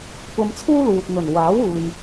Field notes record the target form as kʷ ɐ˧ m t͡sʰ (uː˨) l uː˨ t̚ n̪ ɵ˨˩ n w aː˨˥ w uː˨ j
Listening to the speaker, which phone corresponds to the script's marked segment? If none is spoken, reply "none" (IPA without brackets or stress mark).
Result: uː˥